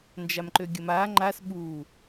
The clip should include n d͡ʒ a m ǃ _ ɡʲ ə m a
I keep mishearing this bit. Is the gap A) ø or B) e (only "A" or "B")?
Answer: A